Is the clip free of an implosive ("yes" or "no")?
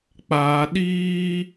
no